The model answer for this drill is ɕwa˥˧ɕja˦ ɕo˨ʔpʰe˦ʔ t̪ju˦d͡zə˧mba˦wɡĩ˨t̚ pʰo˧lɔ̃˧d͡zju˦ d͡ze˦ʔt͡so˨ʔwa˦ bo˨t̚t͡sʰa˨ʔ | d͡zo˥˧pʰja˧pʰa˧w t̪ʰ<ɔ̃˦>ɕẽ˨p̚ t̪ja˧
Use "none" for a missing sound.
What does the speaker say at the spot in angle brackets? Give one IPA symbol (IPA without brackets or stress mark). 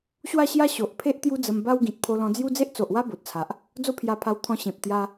ɔ̃˧